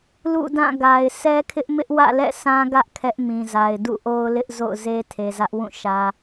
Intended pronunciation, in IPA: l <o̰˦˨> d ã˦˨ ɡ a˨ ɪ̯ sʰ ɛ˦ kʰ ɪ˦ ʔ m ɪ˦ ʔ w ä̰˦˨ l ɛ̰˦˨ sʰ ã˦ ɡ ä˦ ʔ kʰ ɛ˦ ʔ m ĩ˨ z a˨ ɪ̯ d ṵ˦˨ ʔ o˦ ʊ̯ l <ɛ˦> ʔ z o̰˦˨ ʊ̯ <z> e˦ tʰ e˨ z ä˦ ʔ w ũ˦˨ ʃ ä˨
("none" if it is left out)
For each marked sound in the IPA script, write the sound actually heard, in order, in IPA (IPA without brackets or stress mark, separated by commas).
ṵ˦˨, ɪ˦, z